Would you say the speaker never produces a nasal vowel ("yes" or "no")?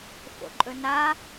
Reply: yes